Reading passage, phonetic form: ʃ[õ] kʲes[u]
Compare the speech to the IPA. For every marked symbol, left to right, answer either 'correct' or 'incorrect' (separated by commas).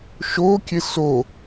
incorrect, incorrect